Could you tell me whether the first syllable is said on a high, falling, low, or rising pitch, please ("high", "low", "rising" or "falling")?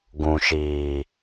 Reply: low